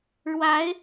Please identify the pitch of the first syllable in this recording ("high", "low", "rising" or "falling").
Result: rising